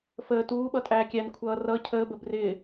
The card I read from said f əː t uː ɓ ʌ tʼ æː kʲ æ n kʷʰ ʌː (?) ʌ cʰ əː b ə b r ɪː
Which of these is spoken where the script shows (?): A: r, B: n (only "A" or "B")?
A